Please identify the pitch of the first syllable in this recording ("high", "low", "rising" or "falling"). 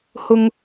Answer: high